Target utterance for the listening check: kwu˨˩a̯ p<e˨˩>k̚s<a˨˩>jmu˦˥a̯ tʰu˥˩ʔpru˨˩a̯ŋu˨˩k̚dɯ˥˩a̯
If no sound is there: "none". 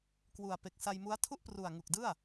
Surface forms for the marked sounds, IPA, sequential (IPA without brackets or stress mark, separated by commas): e˨˩, a˧